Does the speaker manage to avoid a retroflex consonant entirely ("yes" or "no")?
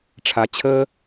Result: no